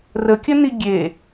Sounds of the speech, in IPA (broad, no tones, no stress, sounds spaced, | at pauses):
r ə kʲ ə n i ɡʲ e